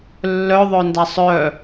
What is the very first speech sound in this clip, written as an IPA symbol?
lː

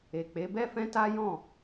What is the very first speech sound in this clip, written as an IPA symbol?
e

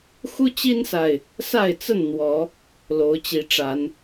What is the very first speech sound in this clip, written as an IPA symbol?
x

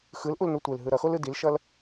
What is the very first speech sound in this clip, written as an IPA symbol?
x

